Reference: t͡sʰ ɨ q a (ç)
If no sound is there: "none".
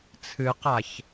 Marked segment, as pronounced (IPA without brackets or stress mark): ç